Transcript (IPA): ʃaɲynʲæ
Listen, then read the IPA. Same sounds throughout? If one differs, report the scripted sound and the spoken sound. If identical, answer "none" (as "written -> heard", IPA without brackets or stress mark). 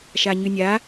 æ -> a